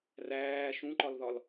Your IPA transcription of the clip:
r æː ʃ ũ ǃ ɒ l ð ɒ l

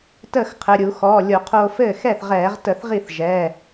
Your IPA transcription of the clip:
t əː˥˩ x qʰ ɘ˩˧˩ ɾʲ u˧˩˧ x ɔː˩˧˩ lʲ o˧˩˧ qʰ oː˧ f ɘː˥˩ x ɛ˥˩ θ ʁ ɛː˧˩˧ ʁ t ə˧˩˧ θ ʁ i˥˩ θ ʒ ɛː˩˧˩

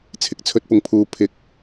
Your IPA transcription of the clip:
t͡sʰ ɪ˨˥ k̚ t͡sʰ ɵ˧ t̚ p ʊ˨ ŋ pʰ uː˨ pʰ ɪ˨˥ k̚

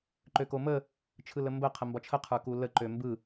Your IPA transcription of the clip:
ǃ ø k o m ə | t͡ʃʰ ɯ l ə m b ə qʰ ə m b ɒ t͡ʃʰ ə qʰ ə˞ k u l ə ǃ ø m b ɯ

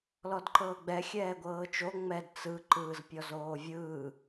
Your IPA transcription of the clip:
l ɔ d ǃ ɤː ɡ͡b ɛ xʲ ɛː ɡʷ ɤː t͡ʃ o ŋ͡m ɛ d t͡s ɯ ǃ ɯː z pʲ ɔ z oː vʲ ɯː

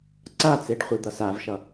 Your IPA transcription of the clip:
ǀ a t͡s e ɖ χʷ i d̪ ʌ s a v ʃ ʌ

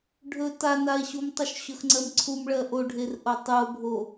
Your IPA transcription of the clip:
ɖʱ ɵ t a n a e̯ ɕ u m tˤ ɵ ʃ ɕ ɵ x ŋ͡ǀ ɜ m ǀʰ u m ɭ ɜ ʔ o ɖʱ e r ʔ o tˤ u o̯ bʱ o

